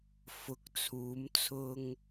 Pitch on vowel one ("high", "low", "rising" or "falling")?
rising